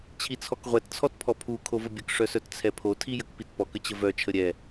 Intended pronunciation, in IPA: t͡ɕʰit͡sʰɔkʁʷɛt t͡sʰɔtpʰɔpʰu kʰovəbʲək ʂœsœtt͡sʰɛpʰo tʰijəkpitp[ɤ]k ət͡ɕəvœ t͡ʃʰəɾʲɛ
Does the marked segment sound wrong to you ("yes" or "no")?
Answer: yes